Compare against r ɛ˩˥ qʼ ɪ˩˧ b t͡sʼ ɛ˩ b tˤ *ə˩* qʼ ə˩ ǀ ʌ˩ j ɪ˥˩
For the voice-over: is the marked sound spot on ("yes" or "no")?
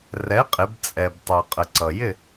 no